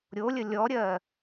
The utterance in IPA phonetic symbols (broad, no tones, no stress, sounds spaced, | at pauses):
ɾʲ o lʲ ə lʲ ɔ ɾʲ ɜ